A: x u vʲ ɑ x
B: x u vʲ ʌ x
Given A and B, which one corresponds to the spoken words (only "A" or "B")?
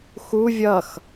B